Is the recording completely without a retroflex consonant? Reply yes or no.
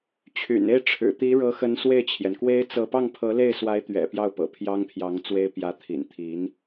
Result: no